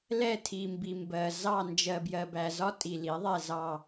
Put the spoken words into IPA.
lɛ˥˧tʰi˨ mbi˨mbɜ˨zɑ˥˧ nd͡ʒɜ˨bjɜ˨bæ˨zɒ˦˥ tʼi˨li˩˥ðˤɛ˥˧zɑ˥˧

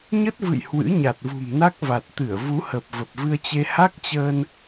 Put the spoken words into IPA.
ɲə˦˥t̚vɨ̰˧˨j hwɨ̰˧˥ɲa˨˩t̚vṳ˨˩mna˦˥k̚ va˨˩t̚t̪ɨ˧˩ə̯ vu˨˦hə˨˩p̚ və˨˩p̚vɨ˧ə̯t͡ɕe˧ ha˦˥k̚t͡ɕəː˧n

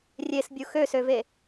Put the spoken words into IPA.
rʲesbʲu xøsøve

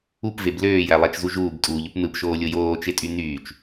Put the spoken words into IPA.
upveb løːjælˠæt͡ʃzu ʒuːbtʼuːʎup nɯpʃoːlʲo joːt͡ʃetʼy nyːt͡ʃ

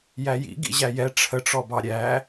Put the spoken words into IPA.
jæjḭ ɡḭʑæjɛ ʈ͡ʂʰəʈ͡ʂɔbɑ ɾʲæ

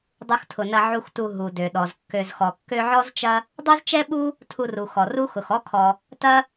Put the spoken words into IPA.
dˤu˨xtʰʊ˩nɐ˨ ʕu˨xtu˨ ɦu˩dø˩ɗɔ˩zkːø˨z xɔ˩kːø˦ʕɔ˥zt͡ʃɐ˥ | dˤø˥zt͡ʃɛ˥ɓu˥ | tʰu˨ru˩ xɔ˩ru˦ xʊ˩x ɔ˦kʰɔ˨ | tɐ˥

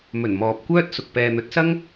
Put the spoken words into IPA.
mɵ˨˩n mɔː˨p̚kʷœː˥t̚sʊ˨k̚ pɛː˨n̪ɵ˨˥t̚sɐ˥ŋ

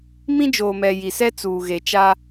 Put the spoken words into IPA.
mĩ˦d͡ʒoː˨mɛ˨ ji˨sɛ˦ t͡suː˨ɣe˨t͡ʃa˦

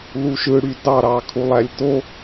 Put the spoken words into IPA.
luʃɯɽy dɑɾɑ kʰulˠælʲto

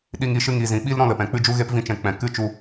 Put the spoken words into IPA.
ɗi˧ŋi˧ ʃɨ˧ŋi˨zĩ˨ ɓi˦l ɾɔ̃˦lə˨pɛ̃˨ k͡pɨ˦d͡ʒu˦ɣe˦p vĩ˧t͡ʃɛ̃˨ k͡pɛ̃˨kɨ˦t͡ʃu˧

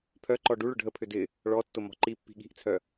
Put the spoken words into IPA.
pʰœǃɔ ɖuɭ ʊɖʱəpʰʏ dɪ | ɭɔtːʊ mɔ̤ǃipːi̤ ɠi̤ʔt͡sʰœ

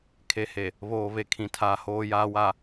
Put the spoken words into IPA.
kʰe˨he˨ | βoː˨ βe˨kʰĩ˨ tʰaː˨hoː˨ jaː˨ wa˨

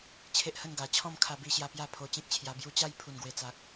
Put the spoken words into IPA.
t͡ɕʰe˦ʔhə˥˧nɡa˨˩ t͡ɕʰɔ̃˥˧mkʰa˧bi˧ɕja˧ pja˥˧ pʰo˧t͡ɕẽ˦k̚t͡ɕʰja˧ bju˧t͡ɕa˥˧j pʰu˨˩nɡwe˨˩t͡sa˨k̚

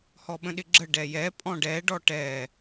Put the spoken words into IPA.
hɔɓə̃ɗɪɡ͡ǁə ɖɛjɛ pʼɔ̃ɖɛ ɖɔʈɛ

